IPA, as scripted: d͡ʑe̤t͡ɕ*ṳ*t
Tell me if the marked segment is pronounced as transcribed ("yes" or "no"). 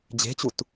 no